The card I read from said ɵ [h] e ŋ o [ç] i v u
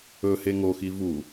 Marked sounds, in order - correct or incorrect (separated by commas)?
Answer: correct, incorrect